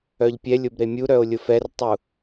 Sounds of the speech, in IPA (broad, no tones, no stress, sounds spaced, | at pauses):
œ ʎ pʲ ɛ lʲ ʊ b ɾ e mʲ u ɾ œ o̯ lʲ ʊ f ɛ r tˤ u